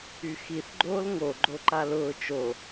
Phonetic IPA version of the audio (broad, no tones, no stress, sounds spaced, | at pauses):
y x i θ ɡ͡ǃ oː l ŋ o ɡ͡ǃ o ǃ a l ʊː t͡ʃ o